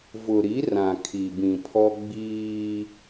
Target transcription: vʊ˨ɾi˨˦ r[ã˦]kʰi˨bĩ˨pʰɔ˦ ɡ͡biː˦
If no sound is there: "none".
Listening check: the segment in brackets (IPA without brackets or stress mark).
ã˨